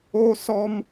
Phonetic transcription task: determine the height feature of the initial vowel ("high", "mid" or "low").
mid